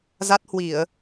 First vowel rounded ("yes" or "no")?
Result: no